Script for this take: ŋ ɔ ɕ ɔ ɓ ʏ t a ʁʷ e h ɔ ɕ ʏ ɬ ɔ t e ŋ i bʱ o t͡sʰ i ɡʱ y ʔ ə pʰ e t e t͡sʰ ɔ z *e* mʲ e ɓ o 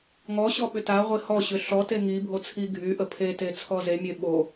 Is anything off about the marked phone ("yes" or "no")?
no